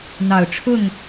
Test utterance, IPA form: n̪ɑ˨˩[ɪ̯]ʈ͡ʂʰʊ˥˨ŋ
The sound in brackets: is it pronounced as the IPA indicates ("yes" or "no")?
no